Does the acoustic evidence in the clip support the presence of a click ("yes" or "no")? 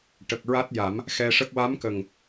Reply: no